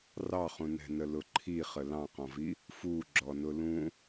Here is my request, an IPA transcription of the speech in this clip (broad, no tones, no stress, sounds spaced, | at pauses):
r ɑ χ ũ n ɛ̤ n ə l ʊ ǃʰ i χ ə l ɑ̃ q ɔ̃ v i | f u ɡ͡ǁ ɔ n ʊ l ũ